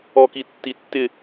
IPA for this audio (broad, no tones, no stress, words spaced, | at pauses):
ɔkitːitːɪ